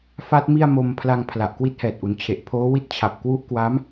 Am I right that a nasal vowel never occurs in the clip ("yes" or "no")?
yes